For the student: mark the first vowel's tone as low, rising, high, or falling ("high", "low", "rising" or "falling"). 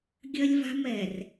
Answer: high